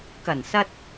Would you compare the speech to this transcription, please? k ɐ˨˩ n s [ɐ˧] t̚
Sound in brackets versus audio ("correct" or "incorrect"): correct